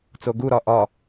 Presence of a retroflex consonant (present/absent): absent